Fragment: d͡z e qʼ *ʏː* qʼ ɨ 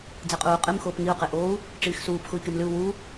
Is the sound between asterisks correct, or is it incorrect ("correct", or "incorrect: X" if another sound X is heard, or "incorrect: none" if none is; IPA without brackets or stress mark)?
incorrect: uː